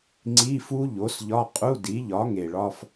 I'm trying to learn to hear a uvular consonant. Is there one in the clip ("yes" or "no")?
yes